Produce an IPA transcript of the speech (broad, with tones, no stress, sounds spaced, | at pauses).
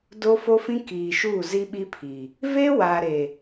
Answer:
d o˦ f o˦ f ĩ˦ k iː˨ ʃ uː˦˨ z i˦ ɓ i˦ pʰ i˨ | v e˦ w aː˨ ɾ e˨